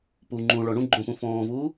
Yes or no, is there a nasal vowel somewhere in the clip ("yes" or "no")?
yes